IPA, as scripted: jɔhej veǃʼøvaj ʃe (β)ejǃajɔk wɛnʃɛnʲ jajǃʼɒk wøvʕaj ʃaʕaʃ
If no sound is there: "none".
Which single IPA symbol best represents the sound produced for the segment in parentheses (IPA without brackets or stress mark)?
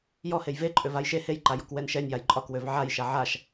h